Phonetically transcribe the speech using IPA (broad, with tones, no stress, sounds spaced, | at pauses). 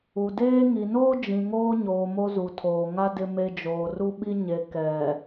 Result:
u˨ d eː˦ ŋ i˨ n oː˦ d͡ʒ ĩ˨ ŋ oː˦ ɲ oː˨ m o˦ z u˨ tʰ oː˨ ŋ a˦ d ɪ˨ m e˨ d͡ʒ oː˨ r u˦ ɓ i˦ ɲ e˨ k ɛ˨